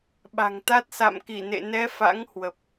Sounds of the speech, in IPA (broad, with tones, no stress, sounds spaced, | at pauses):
ɓ a̤˨˩ ŋ t̪ a˦˥ t̚ s a̰˧˨ m k i˧˩ n ḛ˧˨ n ɛ˨˦ f a̰˧˥ ŋ h w ə˨˩ p̚